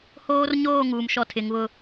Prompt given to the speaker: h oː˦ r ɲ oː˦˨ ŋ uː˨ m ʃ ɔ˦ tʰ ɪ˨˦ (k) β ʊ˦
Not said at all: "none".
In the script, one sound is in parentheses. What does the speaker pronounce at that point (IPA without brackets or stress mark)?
ŋ